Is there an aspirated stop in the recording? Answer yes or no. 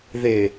no